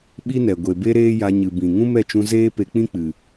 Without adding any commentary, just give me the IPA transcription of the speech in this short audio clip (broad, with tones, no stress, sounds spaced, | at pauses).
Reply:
ɓ i˦ n ɛ˨ ɡʷ e˨ b e˦ ɾ eː˦ j a˧ ɲ ɨ˨ b ĩ˨ ŋ ũ˦ m ɛ˦˨ t͡ʃ ũ˧ z eː˦ p e˧ k͡p ĩ˦ k͡p ɨ˨